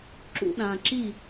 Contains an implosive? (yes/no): yes